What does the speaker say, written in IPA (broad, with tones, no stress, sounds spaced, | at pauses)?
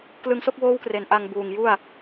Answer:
k l ɯ˧ ŋ s o˥˩ k̚ w oː˦˥ w k r e˩˦ n ʔ a˧ ŋ b uː˨˩ ŋ j u˥˩ a̯